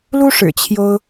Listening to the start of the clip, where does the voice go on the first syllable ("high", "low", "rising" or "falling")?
high